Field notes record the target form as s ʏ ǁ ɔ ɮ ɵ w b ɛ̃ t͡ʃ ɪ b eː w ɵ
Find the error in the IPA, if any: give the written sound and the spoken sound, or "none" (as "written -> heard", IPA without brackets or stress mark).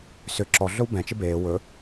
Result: none